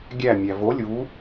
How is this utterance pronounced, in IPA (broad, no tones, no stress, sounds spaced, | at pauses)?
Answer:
ɡʲ æ mʲ æ v o lʲ u